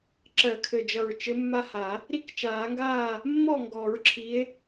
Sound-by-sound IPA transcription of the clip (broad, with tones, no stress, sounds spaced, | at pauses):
ǁ ɜ˨˩˦ kʰ ɘ˨˩ d͡ʒ ʌ˨˩ ɹ t͡ʃ ɘ˨˦ mː a˦ h a˨˩˦ | ɾ i˦ k t͡ʃ aː˨˩˦ ŋ ɡ aː˥˨ | mː ɔ˥˨ ŋ ɡ ɔ˨˩˦ ɹ ǁʰ i˨˦ e̯